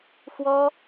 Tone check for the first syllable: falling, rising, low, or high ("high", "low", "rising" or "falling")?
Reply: high